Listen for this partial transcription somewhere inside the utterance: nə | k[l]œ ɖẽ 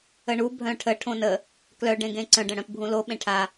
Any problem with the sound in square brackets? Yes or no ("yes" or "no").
no